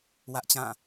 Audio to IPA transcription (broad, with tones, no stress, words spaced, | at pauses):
wä˦ʔt͡ɕã˦˨